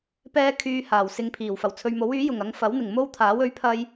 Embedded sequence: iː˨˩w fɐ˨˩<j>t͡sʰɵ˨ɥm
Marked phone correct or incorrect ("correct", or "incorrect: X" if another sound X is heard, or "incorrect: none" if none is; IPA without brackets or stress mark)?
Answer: incorrect: w